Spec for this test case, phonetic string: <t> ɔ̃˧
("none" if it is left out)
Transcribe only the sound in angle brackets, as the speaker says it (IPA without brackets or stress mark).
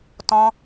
t